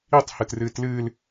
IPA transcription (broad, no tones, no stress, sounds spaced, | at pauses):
i tˤ h ɨ t r ɨː t l ɨː l